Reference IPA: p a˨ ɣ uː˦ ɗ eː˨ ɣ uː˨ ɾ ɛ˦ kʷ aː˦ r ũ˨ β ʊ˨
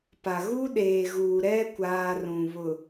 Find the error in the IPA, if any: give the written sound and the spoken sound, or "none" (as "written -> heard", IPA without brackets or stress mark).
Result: none